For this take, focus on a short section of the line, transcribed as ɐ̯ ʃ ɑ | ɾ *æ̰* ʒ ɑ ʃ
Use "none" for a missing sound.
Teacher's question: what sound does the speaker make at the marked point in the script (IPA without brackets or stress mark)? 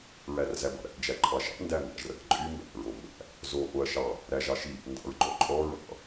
æ